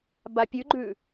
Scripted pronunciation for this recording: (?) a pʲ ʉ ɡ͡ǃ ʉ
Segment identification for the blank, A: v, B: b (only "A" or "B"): B